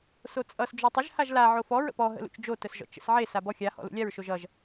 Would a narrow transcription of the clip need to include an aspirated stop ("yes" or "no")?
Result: no